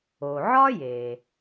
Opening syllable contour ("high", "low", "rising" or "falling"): low